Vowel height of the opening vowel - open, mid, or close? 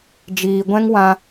close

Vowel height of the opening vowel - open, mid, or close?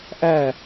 open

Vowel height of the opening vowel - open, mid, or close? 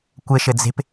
mid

